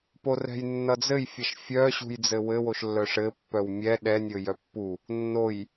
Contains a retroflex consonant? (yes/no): yes